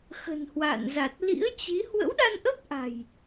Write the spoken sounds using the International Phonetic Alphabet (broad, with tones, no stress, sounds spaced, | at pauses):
x ə̤˨˩ n h w a̰ː˧˨ n z a˨˩ t̚ l ḭ˧˥ ə̯ t͡ɕ i˨˦ h w ə̰˧˥ w ɗ a˧ n ʔ ə˦˥ p̚ ʔ a̤˨˩ j